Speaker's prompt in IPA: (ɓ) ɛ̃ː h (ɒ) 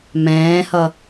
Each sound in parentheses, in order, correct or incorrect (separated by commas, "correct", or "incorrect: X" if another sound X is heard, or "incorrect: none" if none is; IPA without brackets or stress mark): incorrect: m, incorrect: ʌ